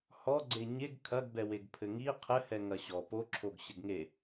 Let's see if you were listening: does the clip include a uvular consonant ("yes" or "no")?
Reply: yes